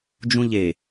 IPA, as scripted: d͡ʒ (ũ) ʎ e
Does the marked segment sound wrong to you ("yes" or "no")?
no